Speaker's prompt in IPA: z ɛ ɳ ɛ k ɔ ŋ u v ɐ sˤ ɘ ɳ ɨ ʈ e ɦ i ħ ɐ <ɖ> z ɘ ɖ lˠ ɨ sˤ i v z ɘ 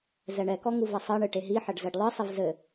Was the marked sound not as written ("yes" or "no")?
no